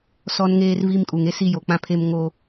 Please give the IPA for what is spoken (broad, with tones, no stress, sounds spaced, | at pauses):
s ɔ˦ n ŋ eː˦ r v i˦ m kʼ u˨ ŋ e˦ s i˦ j o˨ k͡p ã˦ pʰ e˦ m ŋ o˦